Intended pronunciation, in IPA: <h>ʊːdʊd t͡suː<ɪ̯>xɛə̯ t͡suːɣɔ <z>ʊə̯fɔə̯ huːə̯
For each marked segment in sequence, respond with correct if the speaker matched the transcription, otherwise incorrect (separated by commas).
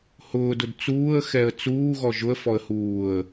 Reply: correct, incorrect, incorrect